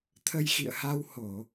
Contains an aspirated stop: yes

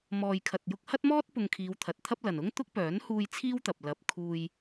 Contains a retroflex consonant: no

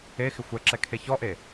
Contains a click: yes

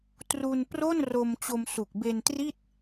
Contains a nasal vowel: no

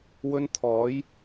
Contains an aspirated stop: yes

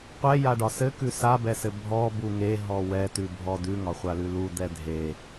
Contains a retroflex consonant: yes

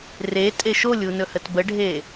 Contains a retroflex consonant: yes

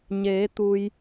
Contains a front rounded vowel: no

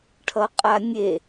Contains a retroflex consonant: yes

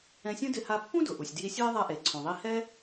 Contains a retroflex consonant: no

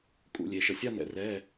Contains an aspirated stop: no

